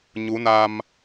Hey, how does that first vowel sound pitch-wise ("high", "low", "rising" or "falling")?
rising